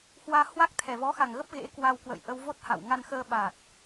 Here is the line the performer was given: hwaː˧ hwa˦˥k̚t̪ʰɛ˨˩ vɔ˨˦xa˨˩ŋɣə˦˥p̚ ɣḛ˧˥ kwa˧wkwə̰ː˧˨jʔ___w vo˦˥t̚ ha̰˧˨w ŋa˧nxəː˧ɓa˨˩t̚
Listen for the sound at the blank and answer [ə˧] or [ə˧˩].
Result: ə˧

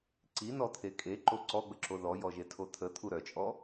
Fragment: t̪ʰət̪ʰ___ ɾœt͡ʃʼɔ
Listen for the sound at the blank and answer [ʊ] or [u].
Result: u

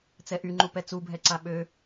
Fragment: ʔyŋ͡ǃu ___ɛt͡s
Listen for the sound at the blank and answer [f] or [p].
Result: p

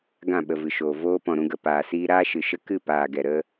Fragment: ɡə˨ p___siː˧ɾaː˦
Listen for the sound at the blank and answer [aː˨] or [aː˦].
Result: aː˨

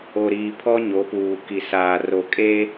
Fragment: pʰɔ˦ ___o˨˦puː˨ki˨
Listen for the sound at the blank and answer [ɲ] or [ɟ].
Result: ɲ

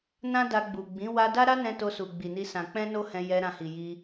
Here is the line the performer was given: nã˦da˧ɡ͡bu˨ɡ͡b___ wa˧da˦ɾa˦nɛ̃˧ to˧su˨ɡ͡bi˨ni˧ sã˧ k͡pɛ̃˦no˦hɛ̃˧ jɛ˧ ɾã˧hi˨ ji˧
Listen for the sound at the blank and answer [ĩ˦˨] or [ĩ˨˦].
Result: ĩ˨˦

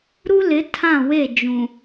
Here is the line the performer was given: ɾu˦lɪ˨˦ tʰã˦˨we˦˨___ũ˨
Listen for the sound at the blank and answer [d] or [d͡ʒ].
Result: d͡ʒ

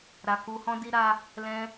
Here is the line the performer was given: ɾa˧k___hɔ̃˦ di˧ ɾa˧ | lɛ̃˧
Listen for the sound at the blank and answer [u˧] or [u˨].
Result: u˧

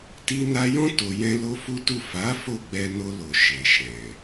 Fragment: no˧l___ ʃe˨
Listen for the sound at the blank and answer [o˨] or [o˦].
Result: o˨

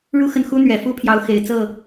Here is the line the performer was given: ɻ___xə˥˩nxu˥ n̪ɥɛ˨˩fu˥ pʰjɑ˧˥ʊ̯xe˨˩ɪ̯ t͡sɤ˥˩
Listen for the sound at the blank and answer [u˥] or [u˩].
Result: u˥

